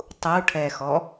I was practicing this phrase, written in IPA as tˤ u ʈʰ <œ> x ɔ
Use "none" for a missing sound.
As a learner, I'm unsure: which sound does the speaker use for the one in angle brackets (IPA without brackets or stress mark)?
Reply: ɛ